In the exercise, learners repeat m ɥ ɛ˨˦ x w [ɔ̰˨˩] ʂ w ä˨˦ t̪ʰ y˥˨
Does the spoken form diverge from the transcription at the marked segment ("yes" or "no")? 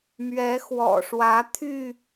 no